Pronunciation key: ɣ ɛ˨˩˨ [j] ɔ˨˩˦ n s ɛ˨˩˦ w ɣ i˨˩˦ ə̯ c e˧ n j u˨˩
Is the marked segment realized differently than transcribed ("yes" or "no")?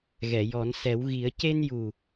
no